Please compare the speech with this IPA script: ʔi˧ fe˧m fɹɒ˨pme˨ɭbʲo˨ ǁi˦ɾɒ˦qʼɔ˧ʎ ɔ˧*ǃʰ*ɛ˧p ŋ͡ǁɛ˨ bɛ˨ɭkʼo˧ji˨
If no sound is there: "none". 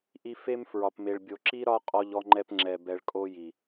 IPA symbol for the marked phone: ŋ͡ǃ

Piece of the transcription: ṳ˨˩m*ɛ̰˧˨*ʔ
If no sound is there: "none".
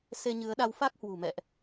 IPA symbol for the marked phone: ɛ̰˧˨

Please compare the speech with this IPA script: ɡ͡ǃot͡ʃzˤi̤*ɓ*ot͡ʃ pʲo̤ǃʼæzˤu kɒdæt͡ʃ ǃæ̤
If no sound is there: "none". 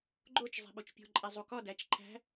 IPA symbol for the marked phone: ɓ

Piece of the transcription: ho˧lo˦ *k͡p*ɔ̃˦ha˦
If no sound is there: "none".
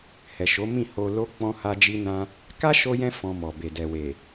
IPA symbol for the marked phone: k͡p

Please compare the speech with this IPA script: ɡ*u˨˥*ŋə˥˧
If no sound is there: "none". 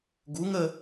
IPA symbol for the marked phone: u˨˥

